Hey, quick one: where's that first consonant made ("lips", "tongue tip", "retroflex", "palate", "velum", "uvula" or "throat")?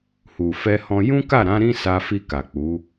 throat